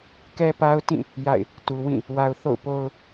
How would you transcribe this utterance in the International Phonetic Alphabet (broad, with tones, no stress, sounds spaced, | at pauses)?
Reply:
k ɛ˦ p a˦ ʊ̯ t ĩ˦˨ | j a̰˦˨ ɪ̯ | t u˨ w ĩ˦˨ | w a˨ ʊ̯ θ o̰˦˨ ʊ̯ p o˦ ʊ̯